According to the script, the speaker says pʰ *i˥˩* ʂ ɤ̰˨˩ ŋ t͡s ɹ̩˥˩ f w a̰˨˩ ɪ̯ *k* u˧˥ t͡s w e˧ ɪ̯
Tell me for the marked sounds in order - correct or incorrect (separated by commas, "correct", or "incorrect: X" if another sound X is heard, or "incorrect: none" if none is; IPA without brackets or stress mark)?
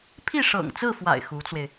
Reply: correct, incorrect: x